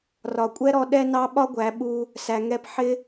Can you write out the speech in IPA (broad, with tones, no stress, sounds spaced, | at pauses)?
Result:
r ɒ˨ kʷʼ ɛ˦ ɾ ɔ˧ ɗ ɛ˦ n ɑ˦ ɓ ɒ˦ ɡʷ æ˨˦ ɓ u˧ | s æ˨ ŋ ɛ˧ p ħ ɪ˦